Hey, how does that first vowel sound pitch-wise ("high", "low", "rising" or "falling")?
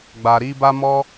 low